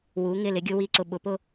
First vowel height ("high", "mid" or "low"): high